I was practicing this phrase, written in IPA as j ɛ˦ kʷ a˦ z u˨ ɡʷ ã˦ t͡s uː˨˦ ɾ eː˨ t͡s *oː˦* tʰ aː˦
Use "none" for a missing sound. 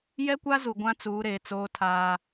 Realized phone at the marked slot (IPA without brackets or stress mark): oː˦